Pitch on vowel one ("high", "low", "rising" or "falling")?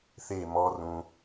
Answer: falling